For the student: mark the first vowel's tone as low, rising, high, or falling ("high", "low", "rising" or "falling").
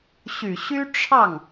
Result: low